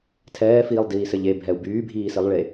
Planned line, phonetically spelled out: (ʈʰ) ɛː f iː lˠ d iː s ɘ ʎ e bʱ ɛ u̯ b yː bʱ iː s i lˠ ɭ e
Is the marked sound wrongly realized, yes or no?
yes